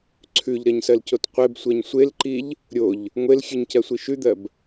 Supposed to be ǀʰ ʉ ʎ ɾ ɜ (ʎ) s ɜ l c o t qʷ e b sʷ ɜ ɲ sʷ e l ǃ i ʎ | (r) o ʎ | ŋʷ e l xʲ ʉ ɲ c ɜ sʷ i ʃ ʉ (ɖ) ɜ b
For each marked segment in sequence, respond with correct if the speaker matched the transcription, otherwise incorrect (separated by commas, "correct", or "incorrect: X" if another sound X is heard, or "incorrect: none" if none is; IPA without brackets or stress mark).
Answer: incorrect: ɲ, incorrect: ɾʲ, incorrect: d̪